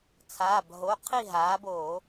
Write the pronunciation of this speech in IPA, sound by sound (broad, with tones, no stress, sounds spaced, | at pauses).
t͡sʰ aː˩˧˩ b ɦ o˩˧˩ qʰ i˥˨ ɦ aː˩˥ b oː˧˩˧